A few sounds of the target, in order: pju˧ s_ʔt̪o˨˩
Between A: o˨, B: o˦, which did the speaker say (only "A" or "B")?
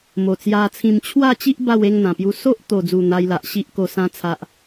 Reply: B